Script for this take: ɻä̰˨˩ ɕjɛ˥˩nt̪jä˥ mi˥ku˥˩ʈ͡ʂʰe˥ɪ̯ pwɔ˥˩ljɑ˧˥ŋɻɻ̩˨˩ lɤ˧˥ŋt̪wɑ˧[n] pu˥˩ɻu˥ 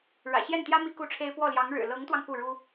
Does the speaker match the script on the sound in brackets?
no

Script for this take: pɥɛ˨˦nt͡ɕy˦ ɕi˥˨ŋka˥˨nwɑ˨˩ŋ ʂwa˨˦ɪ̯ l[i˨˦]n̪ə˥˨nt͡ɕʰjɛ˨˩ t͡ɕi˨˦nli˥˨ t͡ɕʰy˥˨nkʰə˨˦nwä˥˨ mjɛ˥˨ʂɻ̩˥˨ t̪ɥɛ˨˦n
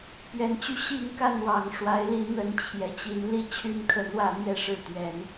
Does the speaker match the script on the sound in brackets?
no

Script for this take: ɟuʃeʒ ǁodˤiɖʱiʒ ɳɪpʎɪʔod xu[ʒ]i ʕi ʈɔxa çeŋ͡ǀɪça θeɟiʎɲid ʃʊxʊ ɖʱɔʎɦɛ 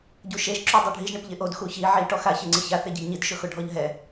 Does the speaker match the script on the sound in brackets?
no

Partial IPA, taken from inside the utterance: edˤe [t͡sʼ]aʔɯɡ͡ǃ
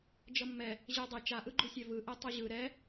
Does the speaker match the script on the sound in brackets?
no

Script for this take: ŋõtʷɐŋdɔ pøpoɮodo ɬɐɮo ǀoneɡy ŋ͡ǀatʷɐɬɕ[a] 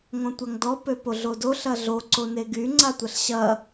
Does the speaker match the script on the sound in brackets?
no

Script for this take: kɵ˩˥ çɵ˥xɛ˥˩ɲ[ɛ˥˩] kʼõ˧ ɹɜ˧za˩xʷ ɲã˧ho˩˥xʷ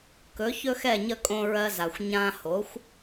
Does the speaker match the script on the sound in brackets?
no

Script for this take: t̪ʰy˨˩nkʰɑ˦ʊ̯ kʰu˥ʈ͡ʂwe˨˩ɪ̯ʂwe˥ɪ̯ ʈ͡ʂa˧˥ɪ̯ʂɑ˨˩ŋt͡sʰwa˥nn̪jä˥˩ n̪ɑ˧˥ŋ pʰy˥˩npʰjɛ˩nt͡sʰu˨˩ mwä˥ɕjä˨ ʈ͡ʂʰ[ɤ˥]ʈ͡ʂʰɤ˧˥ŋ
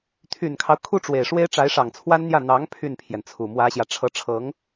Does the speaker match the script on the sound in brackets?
no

